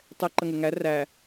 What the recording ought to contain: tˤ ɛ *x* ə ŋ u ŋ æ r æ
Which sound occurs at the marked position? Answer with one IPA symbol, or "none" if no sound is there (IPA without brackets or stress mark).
ǃ